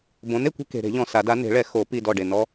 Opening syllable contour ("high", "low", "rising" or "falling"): rising